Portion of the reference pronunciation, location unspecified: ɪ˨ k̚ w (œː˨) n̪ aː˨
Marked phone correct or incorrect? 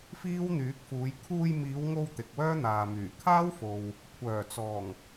incorrect